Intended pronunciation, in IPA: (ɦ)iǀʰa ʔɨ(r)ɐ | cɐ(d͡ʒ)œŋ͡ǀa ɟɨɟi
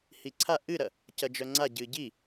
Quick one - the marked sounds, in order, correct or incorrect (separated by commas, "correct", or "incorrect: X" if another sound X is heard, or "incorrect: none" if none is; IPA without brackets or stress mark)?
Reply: incorrect: h, incorrect: ɾ, correct